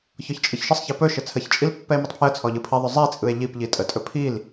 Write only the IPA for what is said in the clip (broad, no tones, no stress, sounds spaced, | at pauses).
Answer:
ç ɔ ç t͡ʃʼ ɯ ç ʃ ə sˤ ç i p ɵ ʃ ɘ t͡sʰ ə ç t͡ʃʼ i l pː ɛ e̯ m i tˤ pʰ j ə t͡sʰ ɔ ʎ ɯ pʰ i ðˤ ɵ zˤ i t͡sʼ ɯ e̯ ʎ i p ʎ i tʼ ə tʼ ɵ pʰ i l